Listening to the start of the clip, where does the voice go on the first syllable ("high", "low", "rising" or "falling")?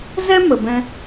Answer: high